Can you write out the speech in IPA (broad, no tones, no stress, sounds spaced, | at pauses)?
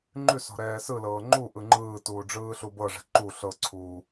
ŋ͡ǃ ʉ s ɔ̤ ɾ ɛː s ɯ l ɤː ŋ͡ǃ u ʔ ɯ ŋ͡ǃ ɯː t uː ɖ͡ʐ ɯː ɬ u b ɤ ʐ ɛ̤ ǃ u ɬ ɤ ǀʰ uː